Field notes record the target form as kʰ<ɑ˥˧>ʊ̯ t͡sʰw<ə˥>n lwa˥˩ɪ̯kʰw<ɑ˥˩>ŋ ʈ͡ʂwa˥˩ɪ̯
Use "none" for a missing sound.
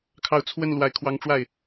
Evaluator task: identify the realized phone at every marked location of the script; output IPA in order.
ɑ˥˧, ə˥˧, ɑ˥

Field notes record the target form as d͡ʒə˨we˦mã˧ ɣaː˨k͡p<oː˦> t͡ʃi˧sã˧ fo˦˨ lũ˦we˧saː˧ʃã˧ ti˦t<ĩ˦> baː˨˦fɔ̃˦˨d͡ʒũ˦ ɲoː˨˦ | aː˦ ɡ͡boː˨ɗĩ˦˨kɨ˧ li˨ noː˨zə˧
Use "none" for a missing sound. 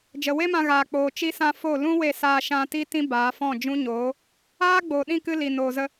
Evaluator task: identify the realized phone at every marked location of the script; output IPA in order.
oː˨, ĩ˦

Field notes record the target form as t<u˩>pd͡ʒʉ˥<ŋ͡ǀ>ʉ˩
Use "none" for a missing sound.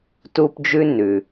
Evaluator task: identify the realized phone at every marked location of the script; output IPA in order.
u˥, n

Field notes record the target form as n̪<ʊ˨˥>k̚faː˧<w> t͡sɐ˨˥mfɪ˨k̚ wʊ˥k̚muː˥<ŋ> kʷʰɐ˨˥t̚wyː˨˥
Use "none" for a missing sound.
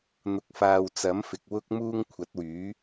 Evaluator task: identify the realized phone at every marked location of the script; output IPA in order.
ʊ˧, w, ŋ

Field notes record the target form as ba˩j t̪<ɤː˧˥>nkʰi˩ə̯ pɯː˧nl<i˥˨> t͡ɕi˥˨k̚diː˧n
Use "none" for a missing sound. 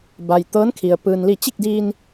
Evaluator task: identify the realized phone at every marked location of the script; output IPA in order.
ɤː˧˥, i˥˨

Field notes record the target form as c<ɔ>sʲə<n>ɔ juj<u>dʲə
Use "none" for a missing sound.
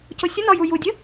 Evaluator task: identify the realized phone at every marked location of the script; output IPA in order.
o, n, u

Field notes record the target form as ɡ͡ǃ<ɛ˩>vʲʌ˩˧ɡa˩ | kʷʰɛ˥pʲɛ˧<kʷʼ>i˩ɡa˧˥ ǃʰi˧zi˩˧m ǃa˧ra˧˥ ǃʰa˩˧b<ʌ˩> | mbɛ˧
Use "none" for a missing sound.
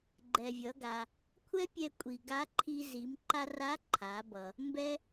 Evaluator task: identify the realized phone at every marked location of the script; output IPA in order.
ɛ˩, kʷʼ, ʌ˩

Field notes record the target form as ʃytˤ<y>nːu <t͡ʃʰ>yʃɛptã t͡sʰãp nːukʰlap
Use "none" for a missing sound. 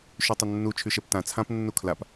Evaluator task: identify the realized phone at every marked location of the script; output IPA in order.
ʏ, t͡ʃʰ

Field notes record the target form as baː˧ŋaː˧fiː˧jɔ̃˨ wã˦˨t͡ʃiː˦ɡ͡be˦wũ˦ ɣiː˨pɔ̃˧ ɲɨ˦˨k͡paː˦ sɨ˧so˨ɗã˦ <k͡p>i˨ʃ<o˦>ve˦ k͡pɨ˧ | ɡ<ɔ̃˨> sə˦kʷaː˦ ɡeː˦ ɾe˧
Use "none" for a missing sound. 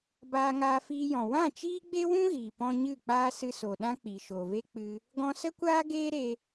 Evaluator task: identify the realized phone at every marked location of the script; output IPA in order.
k͡p, o˨, ɔ̃˧

